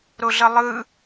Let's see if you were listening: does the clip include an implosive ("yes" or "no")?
no